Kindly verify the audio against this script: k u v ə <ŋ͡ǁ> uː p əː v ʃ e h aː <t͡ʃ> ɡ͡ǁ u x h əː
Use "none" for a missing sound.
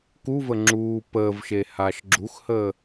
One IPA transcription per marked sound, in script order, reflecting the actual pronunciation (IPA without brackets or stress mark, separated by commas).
ŋ͡ǁ, ʃ